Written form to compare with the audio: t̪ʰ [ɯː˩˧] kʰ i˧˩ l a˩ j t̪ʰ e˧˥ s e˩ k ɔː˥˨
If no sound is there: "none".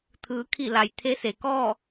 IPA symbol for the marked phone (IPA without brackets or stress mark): ɯː˩˧